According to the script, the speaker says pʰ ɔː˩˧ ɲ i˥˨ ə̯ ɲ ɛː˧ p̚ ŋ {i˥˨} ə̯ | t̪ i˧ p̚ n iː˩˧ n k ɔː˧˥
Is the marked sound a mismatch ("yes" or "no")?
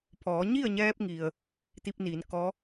yes